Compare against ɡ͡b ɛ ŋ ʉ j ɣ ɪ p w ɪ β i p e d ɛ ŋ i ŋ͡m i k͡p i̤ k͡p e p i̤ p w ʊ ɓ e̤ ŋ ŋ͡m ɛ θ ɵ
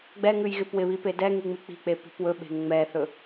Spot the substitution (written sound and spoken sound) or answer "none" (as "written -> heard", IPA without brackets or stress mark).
ʊ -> ɵ